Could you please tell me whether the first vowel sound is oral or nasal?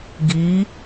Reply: oral